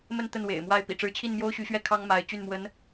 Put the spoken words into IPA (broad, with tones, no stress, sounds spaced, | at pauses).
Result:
m ə˥˧ n t̪ ə˥˩ n w ḛ˨˩ ɪ̯ m w a˥˩ ɪ̯ p ḭ˨˩ ʈ͡ʂ ɻ̩˧˥ t͡ɕʰ i˥˩ n m j o˥ ʊ̯ ɕ y˧˥ ɕ ɥ ɛ˥˩ kʰ ɑ˥ ŋ m a˧˥ ɪ̯ t͡ɕ y˥˩ n m w ə˧˥ n